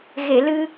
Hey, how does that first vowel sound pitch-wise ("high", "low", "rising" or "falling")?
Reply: low